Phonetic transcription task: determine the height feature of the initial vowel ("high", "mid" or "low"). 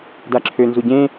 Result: low